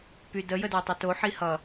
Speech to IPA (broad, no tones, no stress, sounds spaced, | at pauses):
p y d ə j ə d w ə tˤ u t o ħ i h ʌ